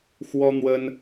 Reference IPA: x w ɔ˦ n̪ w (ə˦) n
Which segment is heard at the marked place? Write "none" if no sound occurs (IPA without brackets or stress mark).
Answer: ə˦